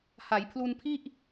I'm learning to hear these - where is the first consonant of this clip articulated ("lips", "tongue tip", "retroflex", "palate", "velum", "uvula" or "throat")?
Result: throat